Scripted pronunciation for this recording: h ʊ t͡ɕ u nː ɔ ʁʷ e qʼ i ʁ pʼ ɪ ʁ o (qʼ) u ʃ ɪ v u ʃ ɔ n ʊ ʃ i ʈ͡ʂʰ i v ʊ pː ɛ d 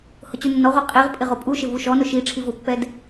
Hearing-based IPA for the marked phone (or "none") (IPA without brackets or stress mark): pʼ